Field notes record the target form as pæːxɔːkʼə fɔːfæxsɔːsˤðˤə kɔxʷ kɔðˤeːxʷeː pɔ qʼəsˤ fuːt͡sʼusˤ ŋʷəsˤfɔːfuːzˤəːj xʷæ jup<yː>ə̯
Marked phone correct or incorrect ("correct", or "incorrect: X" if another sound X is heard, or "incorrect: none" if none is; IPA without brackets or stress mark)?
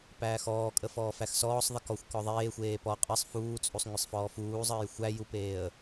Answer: incorrect: eː